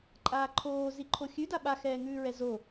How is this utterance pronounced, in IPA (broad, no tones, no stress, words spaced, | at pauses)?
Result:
ǃʼaːǃʰoː ziǃʰoxʲʉ daɓa xɛːŋʉːɹɛzo